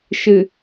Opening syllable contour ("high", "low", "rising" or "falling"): low